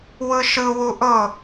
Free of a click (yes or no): yes